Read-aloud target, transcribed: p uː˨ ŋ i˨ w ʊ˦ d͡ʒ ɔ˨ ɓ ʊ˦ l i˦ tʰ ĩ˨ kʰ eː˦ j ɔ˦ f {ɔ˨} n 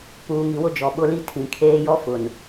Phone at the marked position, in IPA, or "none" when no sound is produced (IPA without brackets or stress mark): ʊ˨